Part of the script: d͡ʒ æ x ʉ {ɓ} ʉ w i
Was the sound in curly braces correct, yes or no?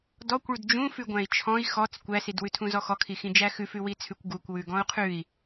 no